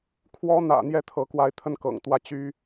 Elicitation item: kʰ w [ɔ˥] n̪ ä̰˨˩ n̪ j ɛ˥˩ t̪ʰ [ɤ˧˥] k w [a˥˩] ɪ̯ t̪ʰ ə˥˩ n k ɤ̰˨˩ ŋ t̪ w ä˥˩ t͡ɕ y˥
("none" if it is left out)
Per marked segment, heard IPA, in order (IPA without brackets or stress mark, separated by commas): ɔ˥, ɤ˧˥, a˧˥